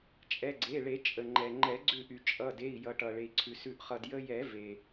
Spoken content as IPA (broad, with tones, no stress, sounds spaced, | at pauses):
t͡ʃʼ ɛ˩˧˩ ɡ͡ǀ e˩˧˩ ɭ e˨˩˦ t͡ʃʼ ə˩ ŋ͡ǃ ɛ˩ ŋ͡ǃ ɛ˨˩˦ ɡ͡ǀ ʉ˧˩ ʔ y˩ t͡ʃʼ ʌ˩˧˩ d e˩˧˩ i̯ j ʌ˨˩˦ ʈ ʌ˩ ɭ e˩ i̯ ǀʰ ʉ˩ s ʉ˧ ʔ χ ʌ˧ d j ə˧ j ɛ˨˩˦ v e˩